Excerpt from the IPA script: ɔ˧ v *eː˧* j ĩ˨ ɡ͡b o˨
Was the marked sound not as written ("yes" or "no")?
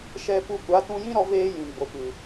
no